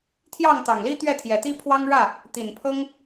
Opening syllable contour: falling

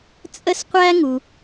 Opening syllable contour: high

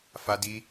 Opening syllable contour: high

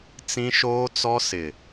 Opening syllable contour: high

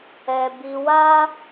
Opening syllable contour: high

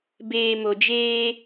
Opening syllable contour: low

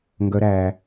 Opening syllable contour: high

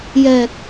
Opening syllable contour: low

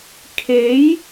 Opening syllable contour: rising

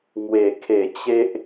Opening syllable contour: falling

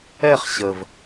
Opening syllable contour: falling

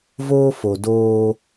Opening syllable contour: high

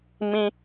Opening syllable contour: high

